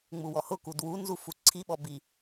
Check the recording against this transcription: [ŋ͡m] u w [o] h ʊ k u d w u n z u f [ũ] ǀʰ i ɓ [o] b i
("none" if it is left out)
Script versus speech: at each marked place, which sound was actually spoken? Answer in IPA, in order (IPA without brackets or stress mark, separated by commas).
ŋ͡m, ɔ, u, ɔ